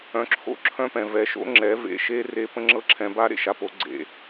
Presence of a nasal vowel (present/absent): present